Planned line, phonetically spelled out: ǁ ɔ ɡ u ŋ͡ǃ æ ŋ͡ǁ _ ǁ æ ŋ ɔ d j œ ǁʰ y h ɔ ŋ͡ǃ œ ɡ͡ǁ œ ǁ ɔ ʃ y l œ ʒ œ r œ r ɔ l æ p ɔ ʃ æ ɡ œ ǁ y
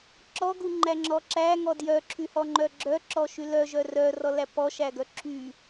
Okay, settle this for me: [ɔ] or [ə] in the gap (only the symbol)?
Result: ɔ